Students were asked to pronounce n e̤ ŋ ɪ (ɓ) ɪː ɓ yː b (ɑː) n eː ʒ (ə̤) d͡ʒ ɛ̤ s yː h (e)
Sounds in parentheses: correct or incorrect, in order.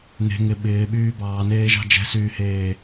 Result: correct, correct, incorrect, incorrect

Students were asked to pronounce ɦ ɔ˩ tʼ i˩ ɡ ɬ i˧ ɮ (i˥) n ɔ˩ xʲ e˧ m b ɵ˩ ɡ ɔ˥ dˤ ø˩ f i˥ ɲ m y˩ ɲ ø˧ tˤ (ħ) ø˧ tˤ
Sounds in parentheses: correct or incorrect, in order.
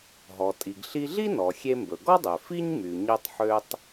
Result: correct, correct

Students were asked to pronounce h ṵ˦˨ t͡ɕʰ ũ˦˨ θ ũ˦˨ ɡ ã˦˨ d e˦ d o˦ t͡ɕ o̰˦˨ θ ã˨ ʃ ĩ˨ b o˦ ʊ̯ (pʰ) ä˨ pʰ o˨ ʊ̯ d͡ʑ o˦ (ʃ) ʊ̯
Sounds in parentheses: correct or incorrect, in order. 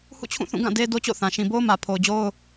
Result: incorrect, incorrect

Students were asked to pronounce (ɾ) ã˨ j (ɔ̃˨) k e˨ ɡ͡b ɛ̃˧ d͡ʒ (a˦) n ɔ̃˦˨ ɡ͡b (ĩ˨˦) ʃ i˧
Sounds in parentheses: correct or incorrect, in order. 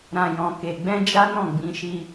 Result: correct, correct, correct, correct

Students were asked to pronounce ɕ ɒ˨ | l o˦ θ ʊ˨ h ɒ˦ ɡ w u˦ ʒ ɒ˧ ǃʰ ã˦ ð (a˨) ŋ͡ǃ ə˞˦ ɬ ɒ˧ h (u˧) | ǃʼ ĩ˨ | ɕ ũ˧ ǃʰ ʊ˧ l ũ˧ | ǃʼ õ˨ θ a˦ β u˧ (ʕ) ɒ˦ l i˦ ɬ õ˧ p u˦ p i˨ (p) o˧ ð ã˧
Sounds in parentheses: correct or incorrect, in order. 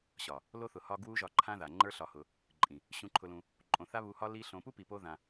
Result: correct, incorrect, incorrect, correct

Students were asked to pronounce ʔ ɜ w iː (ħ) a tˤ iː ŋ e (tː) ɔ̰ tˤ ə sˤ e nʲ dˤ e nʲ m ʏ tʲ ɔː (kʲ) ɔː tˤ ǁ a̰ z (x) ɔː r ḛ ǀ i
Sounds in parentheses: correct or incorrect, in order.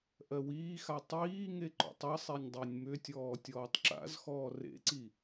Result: incorrect, incorrect, incorrect, correct

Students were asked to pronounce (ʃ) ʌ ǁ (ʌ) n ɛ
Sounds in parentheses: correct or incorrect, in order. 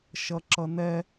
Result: correct, correct

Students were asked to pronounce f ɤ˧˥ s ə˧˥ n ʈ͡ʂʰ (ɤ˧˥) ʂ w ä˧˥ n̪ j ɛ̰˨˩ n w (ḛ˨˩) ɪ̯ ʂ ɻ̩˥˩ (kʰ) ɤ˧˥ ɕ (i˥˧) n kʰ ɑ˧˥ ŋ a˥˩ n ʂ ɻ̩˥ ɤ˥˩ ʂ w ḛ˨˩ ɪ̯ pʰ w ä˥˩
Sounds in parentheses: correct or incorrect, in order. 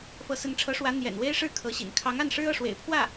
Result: correct, incorrect, correct, incorrect

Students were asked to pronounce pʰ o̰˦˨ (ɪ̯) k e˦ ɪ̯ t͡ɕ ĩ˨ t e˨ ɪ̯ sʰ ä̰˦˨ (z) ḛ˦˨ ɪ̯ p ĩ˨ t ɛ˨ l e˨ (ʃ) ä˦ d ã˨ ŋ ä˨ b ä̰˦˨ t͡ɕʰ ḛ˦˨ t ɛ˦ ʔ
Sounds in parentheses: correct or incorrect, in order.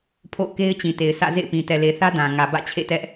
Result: incorrect, correct, incorrect

